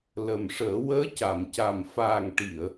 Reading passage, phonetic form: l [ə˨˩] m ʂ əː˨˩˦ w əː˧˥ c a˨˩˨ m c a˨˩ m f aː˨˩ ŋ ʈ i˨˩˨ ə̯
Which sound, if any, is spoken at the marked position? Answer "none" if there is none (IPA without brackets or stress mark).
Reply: ə˨˩